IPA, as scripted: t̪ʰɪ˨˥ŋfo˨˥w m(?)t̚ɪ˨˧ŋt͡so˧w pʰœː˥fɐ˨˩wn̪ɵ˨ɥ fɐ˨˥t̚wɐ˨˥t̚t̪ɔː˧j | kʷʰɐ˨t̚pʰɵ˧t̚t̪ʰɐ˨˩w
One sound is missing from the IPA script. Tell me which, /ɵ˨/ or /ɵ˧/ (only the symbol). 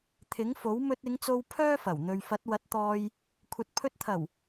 ɵ˧